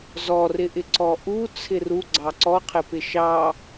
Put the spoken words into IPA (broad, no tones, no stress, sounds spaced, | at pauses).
z ɔ r ɪ ʔ ɪ ǀ ɔ ʔ u t͡sʰ ɪ r u ɡ͡ǀ ɑ ǀ ɔ qʰ ɪ p ɪ ʃ ɑ